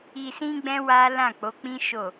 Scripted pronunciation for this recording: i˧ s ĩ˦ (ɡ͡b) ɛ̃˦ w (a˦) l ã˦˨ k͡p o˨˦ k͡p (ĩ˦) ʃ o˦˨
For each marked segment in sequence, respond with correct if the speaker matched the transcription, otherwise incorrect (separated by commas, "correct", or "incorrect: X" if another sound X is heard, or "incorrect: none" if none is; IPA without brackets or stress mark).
correct, correct, correct